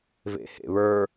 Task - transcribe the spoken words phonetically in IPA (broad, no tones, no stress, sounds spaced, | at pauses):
v ḛ h ḛ β ə˞